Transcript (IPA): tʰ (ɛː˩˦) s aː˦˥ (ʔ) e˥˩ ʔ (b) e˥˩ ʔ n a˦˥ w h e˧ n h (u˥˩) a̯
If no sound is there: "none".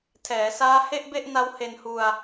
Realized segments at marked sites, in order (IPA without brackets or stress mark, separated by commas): ɛː˩˦, h, b, u˧